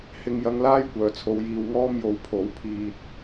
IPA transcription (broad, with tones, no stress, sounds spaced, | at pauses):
h ɪ˧ ŋ j ɐ˧ ŋ l aː˥ j kʷ œː˨ t͡sʰ o˧ w j iː˧ w ŋ ɔː˥ m j o˨˥ w pʰ o˨˥ w pʰ iː˧ t̚